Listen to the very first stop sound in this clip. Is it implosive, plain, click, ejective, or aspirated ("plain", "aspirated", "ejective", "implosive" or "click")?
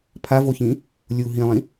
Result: aspirated